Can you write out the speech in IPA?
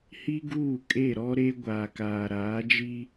h i˦ ɡ uː˦˨ kʼ e˦˨ ɾ ɔ˦ ɾ e˦ ɡʷ aː˨ k aː˨ ɾ aː˨˦ d͡ʒ i˦

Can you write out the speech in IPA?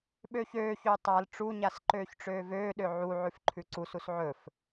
ɓ øː ç øː ç øː tˤ a l ʈ͡ʂ u ɲ a s ǃ øː ç ʈ͡ʂ øː v øː ɗ ø ʕ u ʕ ʉ f ǃʰ ʉ ǀ u s u s ʕ ɵ f

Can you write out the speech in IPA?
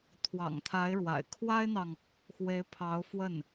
t̪ʰ w ɑ̰˨˩ ŋ t̪ʰ a˧˥ ɪ̯ ɻ w a̰˨˩ ɪ̯ kʰ w a˥ ɪ̯ n̪ ɑ˨ ŋ | x w e˧˥ ɪ̯ pʰ ɑ˧˥ ʊ̯ f w ə˥˩ n

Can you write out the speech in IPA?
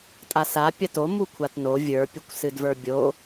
tʼ a s a pʲ ɐ t o m u kʷʰ a t n o vʲ ə˞ pʲ ɨ kʷ s ɨ d v ə˞ bʲ o

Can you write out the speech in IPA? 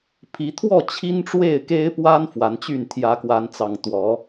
pʰ i˨˦ t̪ʰ w ɔ˥˨ t͡ɕʰ i˦ n ʈ͡ʂ w e˥˨ ɪ̯ k e˦ ɪ̯ p w a˦ n f w a˨˦ n t͡ɕ y˥˨ n t̪ʰ j ä˨˦ k w a˨˦ n t͡s ɑ˨˩ ŋ t̪ w ɔ˨˦

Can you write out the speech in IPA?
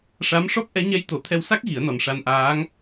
ʂ a˧˥ m ʂ ɔ˦˥ p̚ ʔ ɛ˧˥ ɲ ɛ˧˥ j t̪ o˨˩˦ t̪ʰ ɛ˧ w s a˦˥ k̚ ɣ i˨˩˦ ə̯ n ɔ˨˩ n ʂ a˧ n ʔ aː˧˥ ŋ

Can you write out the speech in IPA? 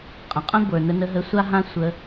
qʼ ə̃˨ qʼ ə̃˦ ɡʷ ə˞˨ n ə˧ n ə˧ ɦ ə˧ sʷ a˦ ɦ ã˦ sʷ ə˧

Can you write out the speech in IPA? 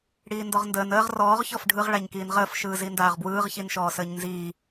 ɽ iː n d ɔ ʁ n d əː n əː ʁ r ɔː ʁ ç ɔ f ɖʱ ɯ ʁ ɭ a ɲ k iː n ʁ əː f ʃ ɯː z i n d aː ʁ b w ɯː ʁ ç i n ʃ ɔː s əː ɲ n z iː

